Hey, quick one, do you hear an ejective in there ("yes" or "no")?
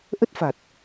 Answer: no